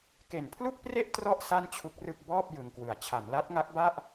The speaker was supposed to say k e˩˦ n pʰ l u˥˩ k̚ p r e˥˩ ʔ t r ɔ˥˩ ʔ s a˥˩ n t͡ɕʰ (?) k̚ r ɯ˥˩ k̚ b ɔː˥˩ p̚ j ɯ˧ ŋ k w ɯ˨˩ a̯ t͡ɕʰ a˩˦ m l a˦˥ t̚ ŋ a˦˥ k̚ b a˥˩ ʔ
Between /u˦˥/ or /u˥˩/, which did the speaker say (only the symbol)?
u˦˥